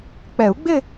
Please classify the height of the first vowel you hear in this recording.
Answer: mid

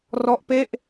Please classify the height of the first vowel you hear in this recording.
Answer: mid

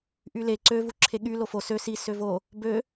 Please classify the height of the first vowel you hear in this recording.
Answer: high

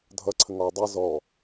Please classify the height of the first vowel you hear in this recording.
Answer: mid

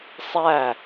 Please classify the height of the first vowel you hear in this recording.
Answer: low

